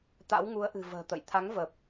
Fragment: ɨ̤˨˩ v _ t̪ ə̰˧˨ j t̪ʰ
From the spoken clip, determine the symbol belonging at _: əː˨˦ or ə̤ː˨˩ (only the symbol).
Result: ə̤ː˨˩